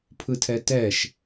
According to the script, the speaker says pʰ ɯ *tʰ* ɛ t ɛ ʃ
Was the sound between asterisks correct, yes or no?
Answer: yes